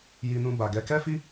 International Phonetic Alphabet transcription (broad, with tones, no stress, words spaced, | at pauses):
ji˧nũ˧ ba˨ɡɛ˨˦ kɛ˦fi˦